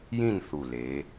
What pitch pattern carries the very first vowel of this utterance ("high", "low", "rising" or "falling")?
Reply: falling